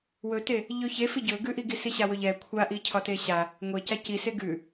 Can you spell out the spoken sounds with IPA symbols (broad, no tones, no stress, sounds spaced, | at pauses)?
w ɵ t e | ʎ ɵ ç e f i ɟ ɵ ɡ ʉ ʔ i ɡ i s i ɕ a w ɵ ʎ ɛ kʷʰ a ʔ i cʰ ɒ t e ɕ a | ŋʷ e c a c i s e ɡ ʉ